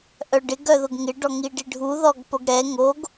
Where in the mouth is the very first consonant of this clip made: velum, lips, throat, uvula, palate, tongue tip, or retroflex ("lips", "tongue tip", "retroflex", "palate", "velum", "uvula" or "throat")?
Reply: throat